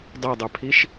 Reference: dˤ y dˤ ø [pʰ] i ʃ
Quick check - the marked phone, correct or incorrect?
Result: correct